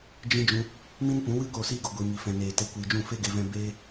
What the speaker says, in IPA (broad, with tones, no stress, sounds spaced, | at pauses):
d͡ʒ ĩ˦ d͡ʒ ũ˦ | m ĩ˦ n p ũ˨˦ w ɨ˦ k oː˧ s iː˦ ɡ o˧ ɡʷ iː˧ ŋ i˧ f ɛ̃˧ n eː˨ t e˧ kʷ iː˨ d͡ʒ ũ˦˨ f e˦ ɡ e˧ v ɛ̃˦ b eː˦